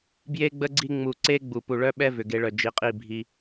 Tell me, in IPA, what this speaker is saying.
b j e˧ ɡ͡b ə˧ ɡ͡ǀ i˧ ŋ͡m u˨ ǀ e˧ ɡ͡b u˨ p u˨ ɭ œ˦ ɓ ɛ˦ v ʏ˨ ɡ e˧ ɭ œ˨ d͡ʒ i˨ qʼ i˦˨ bʱ i˦

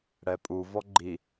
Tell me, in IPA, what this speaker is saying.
ɽ ɛ pʼ u v ɔ ɡ͡ǃ i

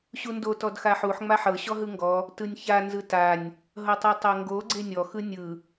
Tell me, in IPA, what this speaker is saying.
ɕ u n d o t ɔ d x a ħ u ħ ŋ͡m a ħ ɤ ɕ ɔ ɦ ɯ ŋ ɡ ɔ | t ɯ nʲ ç a n z ɯ t a nʲ | ɦ ɤ tˤ i tˤ o ŋ ɡ o ɡ͡ǀ e nʲ ɔ x ɯ nʲ ɯ

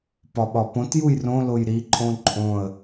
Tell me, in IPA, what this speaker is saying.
p ɒ ɓ ɒ p õ t j u j r õ l o j ɾ i ǃʼ õ ǃʼ õ ə̯

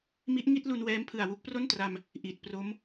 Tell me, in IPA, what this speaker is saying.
m i˦˥ ʔ ŋ i˥˩ t̚ l u˧ n w ɛː˦˥ m pʰ ɯ˨˩ a̯ w u˦˥ k̚ p r o˥˩ n t r a˧ m | ʔ i˨˩ t̚ p r o˦˥ m

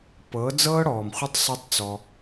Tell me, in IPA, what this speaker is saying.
p ɤ˨˦ d͡z ɤː˦ ɽ ɔː˨ m χʷ ɯ˧ tˤ sˤ e˧ tˤ t͡s ɔ˧

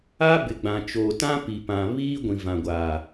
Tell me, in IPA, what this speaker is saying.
a˦ b ɪ˨ ɡ͡b ã˨ t͡ʃ oː˨ t ã˦ p i˨ p ã˨ β iː˦ ɡʷ ĩ˨ v ã˨ ɡʷ aː˨

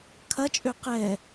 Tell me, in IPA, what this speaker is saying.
kʰ ɐ t͡ʃʼ ø q ɛ

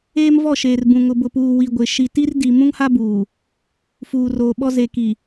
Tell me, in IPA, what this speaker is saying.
eː˦ m v ɔ˦˨ ʃ eː˨ r b ũ˨ ŋ ʊ˨ b ʊ˨ p uː˨ w i˨ ɡʷ ɪ˨ ʃ i˨ t i˦ r d i˨ m ũ˦ ŋ h a˦ b uː˨ | f uː˨ r oː˨ ɓ ɔ˦ z e˨ k i˨

